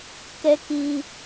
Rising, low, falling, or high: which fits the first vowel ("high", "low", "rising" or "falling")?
low